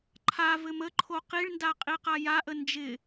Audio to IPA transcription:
ǃʰavɘm əǃʰo qiɭnda qʼiqajaʔə nd͡ʒɪ

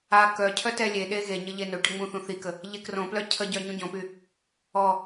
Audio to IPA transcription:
a kœ cʰœtɛlʲeɗe ɣeɲə ʎenøʈə ŋ͡mũθũθikə | ʎekrõplœ cʰəɟœ ɲũɟõpy | ɔ

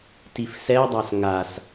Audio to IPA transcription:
tifsɛdˤas ŋas

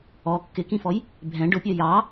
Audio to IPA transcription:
ɔ kːɪkĩfɔj | bʱɛ̃ ɖʊpʲɜ jɑ

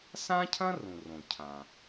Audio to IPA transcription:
sã˥cʰɐ̃˥ rũ˩rõ˩cʰã˩

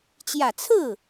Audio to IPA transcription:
t͡ɕjä˨˩t͡sʰɹ̩˥˩

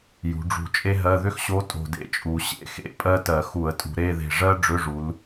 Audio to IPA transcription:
jṳ˩˧ɖ͡ʐṳ˧˩t͡ʃʼe˥ɦɜ˧˥˧ ðʏ˥xɕo˧˥ tʼo̤˧˩dḛ˥t͡ʃʼu˩˧ ɕḛ˧˥˧xḛ˧˥˧ pʼɜ˥tɜ˧˩˧ xu˧˩˧ə̯tʼṳ˧˩˧ ɾe˧˥˧ðe̤˧˩ ʐɜ˥ ɖ͡ʐʏ˧˥˧ʐu˩˧l

